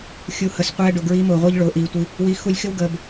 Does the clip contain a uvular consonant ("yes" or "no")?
yes